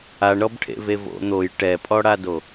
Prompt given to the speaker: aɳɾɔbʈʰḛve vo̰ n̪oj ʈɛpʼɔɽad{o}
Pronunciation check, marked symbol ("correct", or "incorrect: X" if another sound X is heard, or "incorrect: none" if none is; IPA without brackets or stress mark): correct